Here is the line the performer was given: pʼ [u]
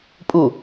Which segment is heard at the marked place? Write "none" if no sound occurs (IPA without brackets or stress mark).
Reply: u